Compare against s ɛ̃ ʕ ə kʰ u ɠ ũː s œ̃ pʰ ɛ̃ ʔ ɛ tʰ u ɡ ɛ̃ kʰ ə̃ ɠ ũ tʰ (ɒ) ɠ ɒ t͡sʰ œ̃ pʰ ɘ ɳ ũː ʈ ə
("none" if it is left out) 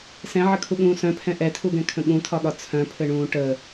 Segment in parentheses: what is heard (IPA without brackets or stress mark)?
ɒ